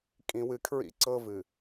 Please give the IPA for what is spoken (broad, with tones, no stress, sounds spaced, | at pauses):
kʼ ĩ˨ w ɨ˨ kʰ ɹ ḭ˦ ǀ ɤ˦ v ɨ˨